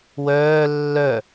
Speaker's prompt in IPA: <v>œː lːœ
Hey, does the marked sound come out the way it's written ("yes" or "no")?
no